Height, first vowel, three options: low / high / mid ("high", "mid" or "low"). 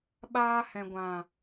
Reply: low